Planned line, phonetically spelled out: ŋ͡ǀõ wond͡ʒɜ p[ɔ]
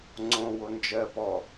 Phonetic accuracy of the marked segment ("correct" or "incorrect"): correct